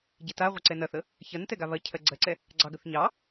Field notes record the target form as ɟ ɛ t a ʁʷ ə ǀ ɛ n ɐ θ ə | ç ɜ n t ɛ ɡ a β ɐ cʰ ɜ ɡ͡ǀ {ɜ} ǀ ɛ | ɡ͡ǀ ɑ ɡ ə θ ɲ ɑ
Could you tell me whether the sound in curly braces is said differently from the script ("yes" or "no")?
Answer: no